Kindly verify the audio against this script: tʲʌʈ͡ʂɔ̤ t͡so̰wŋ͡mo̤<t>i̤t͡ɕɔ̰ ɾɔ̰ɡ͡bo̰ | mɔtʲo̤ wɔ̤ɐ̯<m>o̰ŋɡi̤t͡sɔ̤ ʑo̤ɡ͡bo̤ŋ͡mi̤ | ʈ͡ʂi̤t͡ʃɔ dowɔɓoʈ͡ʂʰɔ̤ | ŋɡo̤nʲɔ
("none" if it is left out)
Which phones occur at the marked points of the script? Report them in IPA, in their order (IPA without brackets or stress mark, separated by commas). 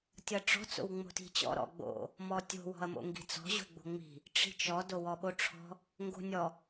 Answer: t, m